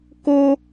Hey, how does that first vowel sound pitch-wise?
high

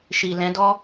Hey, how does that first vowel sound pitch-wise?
low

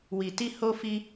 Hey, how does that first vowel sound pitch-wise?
low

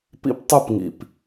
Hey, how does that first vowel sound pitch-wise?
high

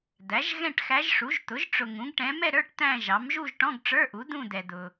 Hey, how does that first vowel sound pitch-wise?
rising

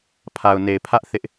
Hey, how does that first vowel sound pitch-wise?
low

